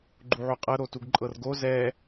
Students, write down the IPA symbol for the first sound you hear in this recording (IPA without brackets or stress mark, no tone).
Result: ɡ͡ǃ